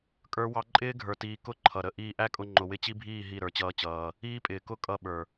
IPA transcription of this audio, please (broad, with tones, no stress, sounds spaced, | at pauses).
kʼ ə˞˦ w ɑ˦ ǃʼ ɪː˦ ɡʱ ə˞˨ t iː˨ k ʊ˦˨ ǃʰ ʌ˨ ɾ ə˦˨ ʔ iː˧ ʔ æ˦ kʼ ʊ˧ ŋ͡ǃ ʊ˨ w ɪ˦ t͡ɕ i˦ bʱ iː˦˨ ɦ i˦˨ ɾ ə˞˧ t͡ɕ ʌː˦ t͡ɕ ʌː˧ | iː˦ pʼ ɪː˨ k ʊ˦ kʼ ʌ˧ ɓ ə˞˨